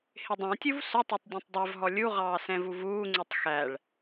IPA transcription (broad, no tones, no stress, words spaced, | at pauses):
hɪdˤɑ̃tʲuv sʊtˤætˤ dʲɛ̃tˤdˤɛvɦɔ lʲuʁɑː sɛ̃vuvuːŋ͡ǀutˤ xæɭ